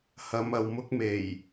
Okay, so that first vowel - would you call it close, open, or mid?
open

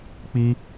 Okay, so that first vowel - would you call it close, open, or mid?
close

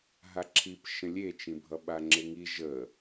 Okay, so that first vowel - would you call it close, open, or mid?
open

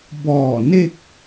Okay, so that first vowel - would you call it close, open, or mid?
mid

